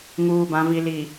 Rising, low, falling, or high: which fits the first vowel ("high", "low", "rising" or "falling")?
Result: low